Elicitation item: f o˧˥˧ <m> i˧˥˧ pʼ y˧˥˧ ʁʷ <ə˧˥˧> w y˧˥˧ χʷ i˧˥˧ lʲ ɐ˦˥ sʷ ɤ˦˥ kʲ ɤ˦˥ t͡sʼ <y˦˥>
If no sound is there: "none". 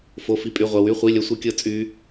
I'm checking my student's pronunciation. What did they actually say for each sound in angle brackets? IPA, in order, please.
f, ɐ˧˥˧, y˦˥

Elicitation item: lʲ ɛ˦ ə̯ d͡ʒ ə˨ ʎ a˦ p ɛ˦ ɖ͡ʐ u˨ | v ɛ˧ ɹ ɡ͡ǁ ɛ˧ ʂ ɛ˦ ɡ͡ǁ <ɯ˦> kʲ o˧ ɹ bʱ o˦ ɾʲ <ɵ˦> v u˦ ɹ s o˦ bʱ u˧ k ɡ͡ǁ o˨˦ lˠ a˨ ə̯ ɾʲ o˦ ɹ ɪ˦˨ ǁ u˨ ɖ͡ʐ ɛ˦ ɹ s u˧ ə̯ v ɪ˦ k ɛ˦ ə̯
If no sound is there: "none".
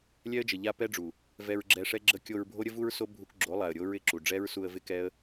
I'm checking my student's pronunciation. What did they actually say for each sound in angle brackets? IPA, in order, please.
ə˦, ə˦

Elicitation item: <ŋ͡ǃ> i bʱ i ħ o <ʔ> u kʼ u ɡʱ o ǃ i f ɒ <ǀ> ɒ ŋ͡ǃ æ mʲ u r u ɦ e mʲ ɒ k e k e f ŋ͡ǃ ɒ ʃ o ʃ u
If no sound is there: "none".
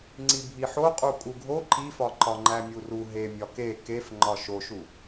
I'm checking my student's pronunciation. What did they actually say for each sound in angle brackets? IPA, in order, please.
ŋ͡ǀ, qʼ, ǃ

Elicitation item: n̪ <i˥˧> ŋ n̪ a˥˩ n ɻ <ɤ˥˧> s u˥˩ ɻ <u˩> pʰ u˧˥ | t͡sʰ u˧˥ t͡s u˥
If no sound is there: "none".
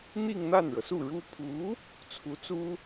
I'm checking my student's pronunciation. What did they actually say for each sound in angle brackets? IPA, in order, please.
i˥˧, ɤ˩, u˥

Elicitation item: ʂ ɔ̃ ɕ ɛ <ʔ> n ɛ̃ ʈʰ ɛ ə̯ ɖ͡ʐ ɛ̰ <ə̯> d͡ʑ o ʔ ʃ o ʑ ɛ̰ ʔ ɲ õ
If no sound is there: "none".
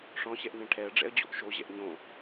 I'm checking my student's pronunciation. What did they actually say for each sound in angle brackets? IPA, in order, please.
ʔ, ə̯

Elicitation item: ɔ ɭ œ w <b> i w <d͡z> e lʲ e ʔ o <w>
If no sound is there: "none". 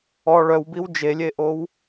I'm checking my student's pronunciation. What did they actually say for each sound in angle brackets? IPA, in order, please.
b, d͡ʒ, w

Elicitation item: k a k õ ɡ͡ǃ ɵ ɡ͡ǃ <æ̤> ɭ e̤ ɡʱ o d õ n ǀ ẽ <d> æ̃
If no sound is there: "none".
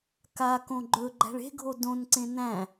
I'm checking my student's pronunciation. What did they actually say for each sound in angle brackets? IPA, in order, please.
æ̤, n

